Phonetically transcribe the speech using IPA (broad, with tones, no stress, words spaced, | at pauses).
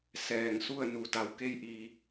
sɛː˧˩ŋ su˥˨ə̯nu˩˧ da˩˧wke˧jʔiː˩